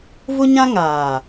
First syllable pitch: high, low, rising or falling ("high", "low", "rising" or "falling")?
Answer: high